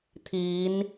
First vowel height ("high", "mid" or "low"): high